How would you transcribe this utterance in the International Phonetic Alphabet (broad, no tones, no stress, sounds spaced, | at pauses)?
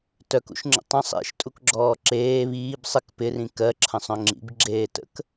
t œ k ṵ ʃ ŋ͡ǁ ə̰ tˤ ə̃ sˤ ḛ ʃ tʼ u k ɡ͡ǁ ɔː ǁ eː β iː b sˤ ɪ k p ɪ r ĩ k ɜ ǁʰ ə̃ sˤ œ̃ ŋ͡ǁ ḭ b ɡ͡ǁ eː t ə̰ k